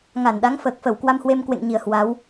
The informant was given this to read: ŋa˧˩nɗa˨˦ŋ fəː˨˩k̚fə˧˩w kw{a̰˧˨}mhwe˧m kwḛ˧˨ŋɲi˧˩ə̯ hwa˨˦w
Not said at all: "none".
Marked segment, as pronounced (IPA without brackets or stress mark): a˧